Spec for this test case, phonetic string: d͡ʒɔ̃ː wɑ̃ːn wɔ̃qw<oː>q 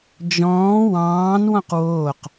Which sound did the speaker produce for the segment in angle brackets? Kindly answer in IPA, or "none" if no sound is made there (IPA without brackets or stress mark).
oː